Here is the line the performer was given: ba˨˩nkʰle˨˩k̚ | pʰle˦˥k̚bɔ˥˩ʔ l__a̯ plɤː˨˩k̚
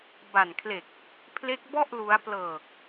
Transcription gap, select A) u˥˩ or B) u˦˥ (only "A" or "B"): B